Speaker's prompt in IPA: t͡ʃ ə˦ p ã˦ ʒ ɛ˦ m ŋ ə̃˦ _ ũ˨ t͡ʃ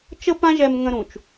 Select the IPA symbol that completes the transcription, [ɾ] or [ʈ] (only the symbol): ɾ